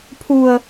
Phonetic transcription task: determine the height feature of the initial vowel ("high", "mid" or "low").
high